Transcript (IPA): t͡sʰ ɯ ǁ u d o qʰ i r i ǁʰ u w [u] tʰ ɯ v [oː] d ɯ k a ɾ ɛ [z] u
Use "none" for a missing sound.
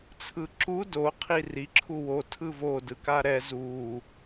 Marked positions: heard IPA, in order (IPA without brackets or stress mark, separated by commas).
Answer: o, o, z